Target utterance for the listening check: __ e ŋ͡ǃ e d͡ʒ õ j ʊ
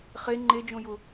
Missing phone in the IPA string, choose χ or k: χ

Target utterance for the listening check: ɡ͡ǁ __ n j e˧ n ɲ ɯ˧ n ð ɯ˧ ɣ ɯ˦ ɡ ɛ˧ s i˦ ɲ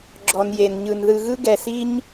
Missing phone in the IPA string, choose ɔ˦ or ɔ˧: ɔ˧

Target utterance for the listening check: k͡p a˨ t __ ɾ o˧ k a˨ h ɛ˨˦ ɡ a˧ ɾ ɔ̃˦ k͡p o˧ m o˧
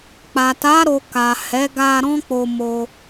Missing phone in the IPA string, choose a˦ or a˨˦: a˨˦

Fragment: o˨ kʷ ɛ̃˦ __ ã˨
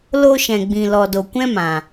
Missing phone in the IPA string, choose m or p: m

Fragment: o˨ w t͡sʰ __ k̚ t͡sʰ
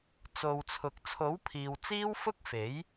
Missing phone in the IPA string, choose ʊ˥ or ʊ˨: ʊ˨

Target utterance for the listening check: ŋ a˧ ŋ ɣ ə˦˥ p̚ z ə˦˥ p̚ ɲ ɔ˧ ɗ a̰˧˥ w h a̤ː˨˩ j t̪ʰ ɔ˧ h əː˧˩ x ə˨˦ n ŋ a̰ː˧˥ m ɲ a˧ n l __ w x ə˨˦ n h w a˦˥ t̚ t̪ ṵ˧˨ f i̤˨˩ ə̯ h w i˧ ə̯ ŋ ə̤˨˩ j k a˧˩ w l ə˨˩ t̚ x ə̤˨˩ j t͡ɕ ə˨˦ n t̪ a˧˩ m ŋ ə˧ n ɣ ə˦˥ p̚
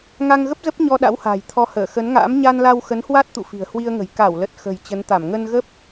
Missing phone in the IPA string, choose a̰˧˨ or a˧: a˧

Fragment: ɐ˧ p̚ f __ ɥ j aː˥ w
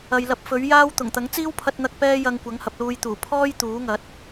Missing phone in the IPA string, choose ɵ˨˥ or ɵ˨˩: ɵ˨˥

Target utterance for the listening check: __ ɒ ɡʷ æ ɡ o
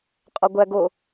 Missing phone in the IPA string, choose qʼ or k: qʼ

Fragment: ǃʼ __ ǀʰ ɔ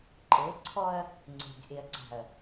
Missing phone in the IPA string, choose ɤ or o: ɤ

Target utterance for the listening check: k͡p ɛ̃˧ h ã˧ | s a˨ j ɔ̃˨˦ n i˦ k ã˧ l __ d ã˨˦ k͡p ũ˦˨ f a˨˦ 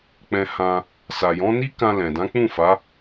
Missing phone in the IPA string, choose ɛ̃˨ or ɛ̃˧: ɛ̃˨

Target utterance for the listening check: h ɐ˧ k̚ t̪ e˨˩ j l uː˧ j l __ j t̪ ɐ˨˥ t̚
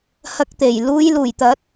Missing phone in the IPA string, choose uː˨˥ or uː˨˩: uː˨˩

